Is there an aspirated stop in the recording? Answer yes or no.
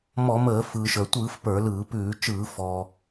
no